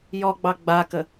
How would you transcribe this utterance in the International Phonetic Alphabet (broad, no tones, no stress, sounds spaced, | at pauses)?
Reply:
j ɔ ɡ͡b ɑ ɡ͡b a k ə